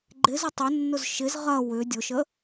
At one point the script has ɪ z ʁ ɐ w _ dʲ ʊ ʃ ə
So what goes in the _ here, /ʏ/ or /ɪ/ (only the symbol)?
ʏ